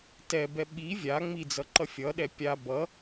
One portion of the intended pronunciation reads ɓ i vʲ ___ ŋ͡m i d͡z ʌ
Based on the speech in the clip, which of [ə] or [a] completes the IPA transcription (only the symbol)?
a